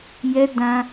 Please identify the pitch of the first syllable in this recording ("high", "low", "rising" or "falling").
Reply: high